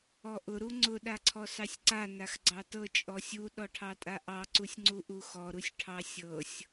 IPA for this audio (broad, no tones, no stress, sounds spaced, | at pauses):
ɔ ʔ ʊ ɾ u ŋ͡ǀ ʊ ɗ a ǀʰ ɔ s ɑ sʲ ǀ a n a x ɡ͡ǀ ɑ t ɤ t͡ʃʼ ɔ sʲ u ɗ ɔ ʈʰ ɑ tʼ a ʔ ɑ ǀ u sʲ ŋ͡ǀ u ʔ u x ɔ ɾ u sʲ ʈʰ ɑ sʲ ɤ sʲ